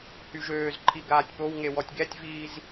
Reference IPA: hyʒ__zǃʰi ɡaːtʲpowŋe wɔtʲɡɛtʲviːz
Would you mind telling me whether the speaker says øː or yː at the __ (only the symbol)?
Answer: øː